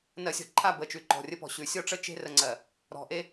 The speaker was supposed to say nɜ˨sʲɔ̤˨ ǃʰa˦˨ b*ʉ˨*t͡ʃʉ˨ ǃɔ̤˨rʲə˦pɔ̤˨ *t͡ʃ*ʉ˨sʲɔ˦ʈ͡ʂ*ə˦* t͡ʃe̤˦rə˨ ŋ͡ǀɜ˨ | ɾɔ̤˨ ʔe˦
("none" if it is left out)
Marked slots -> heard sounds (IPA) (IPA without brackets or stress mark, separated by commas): ə˨, ɕ, ə˦